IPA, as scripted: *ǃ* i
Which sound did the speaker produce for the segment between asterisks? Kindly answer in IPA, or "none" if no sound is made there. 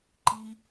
ǃ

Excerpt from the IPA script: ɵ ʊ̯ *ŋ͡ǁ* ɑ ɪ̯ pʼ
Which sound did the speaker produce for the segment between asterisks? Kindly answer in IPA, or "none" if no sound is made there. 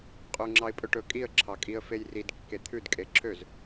ŋ͡ǁ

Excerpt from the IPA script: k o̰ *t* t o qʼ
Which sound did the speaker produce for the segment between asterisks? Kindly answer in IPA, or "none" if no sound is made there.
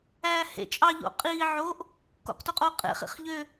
q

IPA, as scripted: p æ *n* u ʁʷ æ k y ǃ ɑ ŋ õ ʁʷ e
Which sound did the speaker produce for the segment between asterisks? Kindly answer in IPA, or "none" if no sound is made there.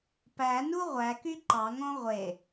n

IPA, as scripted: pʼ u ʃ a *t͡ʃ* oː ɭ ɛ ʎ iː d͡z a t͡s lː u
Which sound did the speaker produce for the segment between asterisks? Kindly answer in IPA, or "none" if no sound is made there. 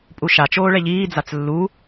t͡ʃ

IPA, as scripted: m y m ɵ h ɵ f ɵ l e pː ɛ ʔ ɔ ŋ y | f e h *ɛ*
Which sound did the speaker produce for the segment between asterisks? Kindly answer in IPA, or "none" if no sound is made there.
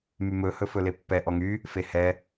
ɛ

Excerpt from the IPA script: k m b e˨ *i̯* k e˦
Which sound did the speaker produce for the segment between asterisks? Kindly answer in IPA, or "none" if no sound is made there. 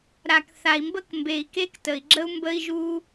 i̯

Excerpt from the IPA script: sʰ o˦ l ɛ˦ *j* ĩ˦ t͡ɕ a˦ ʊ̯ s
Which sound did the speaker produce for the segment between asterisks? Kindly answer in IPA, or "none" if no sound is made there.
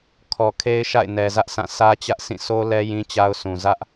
j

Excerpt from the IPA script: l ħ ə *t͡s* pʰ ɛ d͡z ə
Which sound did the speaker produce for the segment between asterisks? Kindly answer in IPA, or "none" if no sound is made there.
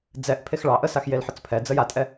t͡s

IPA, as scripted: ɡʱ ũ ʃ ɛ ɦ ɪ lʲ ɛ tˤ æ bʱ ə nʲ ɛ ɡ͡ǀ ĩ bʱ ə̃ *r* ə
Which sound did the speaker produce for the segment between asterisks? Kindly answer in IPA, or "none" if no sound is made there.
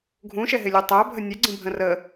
r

